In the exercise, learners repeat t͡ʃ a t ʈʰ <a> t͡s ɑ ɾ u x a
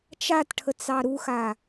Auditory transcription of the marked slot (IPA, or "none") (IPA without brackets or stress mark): ə